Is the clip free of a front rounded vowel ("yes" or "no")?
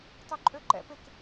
no